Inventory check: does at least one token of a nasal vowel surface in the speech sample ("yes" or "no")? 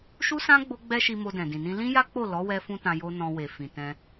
yes